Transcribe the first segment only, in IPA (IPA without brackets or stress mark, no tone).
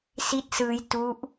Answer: s